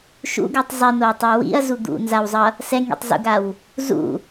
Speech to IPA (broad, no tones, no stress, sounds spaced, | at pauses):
ʃ ṵ ɡ ɯ tˤ zˤ i n o w tˤ ɛ w ḭ ɐ̯ z u d̪ ṵ n z a w zˤ ʌ | s ɛ ŋ ḭ tˤ z ṵ ɡ a w | z ṵ